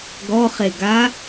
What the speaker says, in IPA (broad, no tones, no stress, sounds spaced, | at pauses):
ɡ ɔ χ e ɡ a